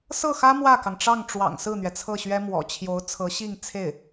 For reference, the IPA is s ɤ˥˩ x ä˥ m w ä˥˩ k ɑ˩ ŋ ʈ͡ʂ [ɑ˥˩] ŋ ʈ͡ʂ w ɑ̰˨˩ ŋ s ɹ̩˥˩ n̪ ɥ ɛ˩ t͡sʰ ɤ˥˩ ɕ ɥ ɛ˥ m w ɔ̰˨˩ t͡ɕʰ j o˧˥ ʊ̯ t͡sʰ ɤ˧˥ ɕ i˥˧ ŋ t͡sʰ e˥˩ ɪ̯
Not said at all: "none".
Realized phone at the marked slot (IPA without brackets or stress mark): ɑ˥˩